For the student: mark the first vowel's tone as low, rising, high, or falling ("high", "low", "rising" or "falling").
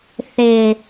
low